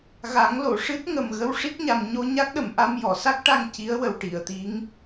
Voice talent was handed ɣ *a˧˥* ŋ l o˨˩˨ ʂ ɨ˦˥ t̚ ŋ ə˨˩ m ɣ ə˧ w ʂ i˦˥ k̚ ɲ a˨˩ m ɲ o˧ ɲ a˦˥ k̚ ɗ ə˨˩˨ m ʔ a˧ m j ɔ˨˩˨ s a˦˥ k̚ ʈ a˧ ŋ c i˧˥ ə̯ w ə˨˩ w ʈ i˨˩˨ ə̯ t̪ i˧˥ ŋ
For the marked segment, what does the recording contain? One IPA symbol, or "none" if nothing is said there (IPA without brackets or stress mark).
a˨˩˦